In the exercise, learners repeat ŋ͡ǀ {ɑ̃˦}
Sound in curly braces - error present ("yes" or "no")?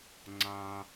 no